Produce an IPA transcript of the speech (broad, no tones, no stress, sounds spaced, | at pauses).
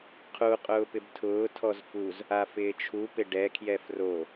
qʰ u qʼ ʊː p ɪ b tʰ ʊː tʰ ɔ z f u z | a f ɪː t͡ʃʰ u p ɪ ɖ ɛ kʰ j ɛ f r o